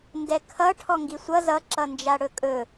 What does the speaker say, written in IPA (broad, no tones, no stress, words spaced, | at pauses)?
ndɛkʰʌ ʈʰɔŋɡisʷʌ zʌ ǁʌnd͡ʒaɽɵkʼɵ